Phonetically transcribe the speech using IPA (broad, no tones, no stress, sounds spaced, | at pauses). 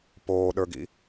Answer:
p oː ɗ ə˞ ɡ ḭ